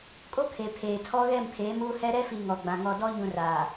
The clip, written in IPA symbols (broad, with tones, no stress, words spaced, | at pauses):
kʼo˦kʰe˨ pʰeː˨ tʰɔ˦ɣɛ˦˨mpʰeː˨˦muː˦ hɛ˦ ɾɛ˦fi˨ ŋɔ˨ɡ͡bã˨ ŋɔ˨dɔ˦ɲũ˨ raː˨